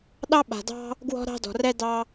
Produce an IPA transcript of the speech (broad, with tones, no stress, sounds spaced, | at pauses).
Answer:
ɗ ɑ˦ ɓ a̤˧ d ɑ̤˦ | ɡ w ɔ̤˦ ɾ ɑ̤˦ d ɔ̤˧ r ɛ˦ d ɑ˦